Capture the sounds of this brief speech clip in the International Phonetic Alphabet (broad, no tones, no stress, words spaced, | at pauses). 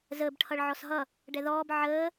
zəːbʈʰʌɭ ʕɔsɦʌ | ɖɛðɔːb ʕəː